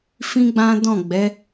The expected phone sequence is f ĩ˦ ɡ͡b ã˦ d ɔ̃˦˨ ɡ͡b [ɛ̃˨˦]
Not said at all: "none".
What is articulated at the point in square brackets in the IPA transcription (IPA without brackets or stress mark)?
ɛ˨˦